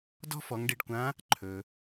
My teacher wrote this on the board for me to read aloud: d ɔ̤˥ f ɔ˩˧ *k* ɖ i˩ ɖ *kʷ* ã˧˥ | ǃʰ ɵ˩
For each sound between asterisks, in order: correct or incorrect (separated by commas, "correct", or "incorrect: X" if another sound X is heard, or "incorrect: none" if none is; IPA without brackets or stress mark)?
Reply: incorrect: ŋ, correct